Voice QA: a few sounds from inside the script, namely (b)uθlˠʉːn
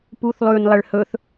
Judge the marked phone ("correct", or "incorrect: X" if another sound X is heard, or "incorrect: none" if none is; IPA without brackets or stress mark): incorrect: p